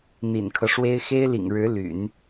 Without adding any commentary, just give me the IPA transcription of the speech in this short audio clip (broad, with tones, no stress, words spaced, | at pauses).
n̪ḭ˨˩nkʰɤ˦ʂwe˥ɪ̯ xe˥ɪ̯lḭ˨˩ŋɻɻ̩˧˥ ly̰˨˩˦n